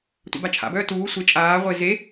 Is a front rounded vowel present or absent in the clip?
present